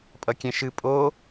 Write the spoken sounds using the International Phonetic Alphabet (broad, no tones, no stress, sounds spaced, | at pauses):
pʼ ʌ kʲ ɛ̃ ʃ ɨ pʼ o